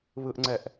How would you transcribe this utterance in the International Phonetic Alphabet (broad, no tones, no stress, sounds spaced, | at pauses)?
β ɯ ʔ ŋ͡ǀ ɛ ʔ